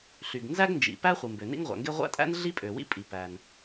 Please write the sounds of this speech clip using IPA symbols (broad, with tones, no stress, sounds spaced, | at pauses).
ɬ y˩ ɡ n z æ˥ ɡ n d͡ʒ ḭ˩ p æ˥ χʷ ɯ˩ m b ø˩ n ḭ˥ ŋ ʁʷ æ̰˩ ŋ ɡ e˥ ʁʷ æ̰˥ tʼ æ̰˥ n ɮ i˥ pʼ ø˩ w ḭ˥ pʼ i˩ p æ˩ n